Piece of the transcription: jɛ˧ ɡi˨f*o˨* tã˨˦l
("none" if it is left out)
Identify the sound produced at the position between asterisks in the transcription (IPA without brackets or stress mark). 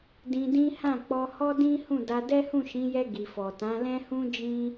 ɔ˨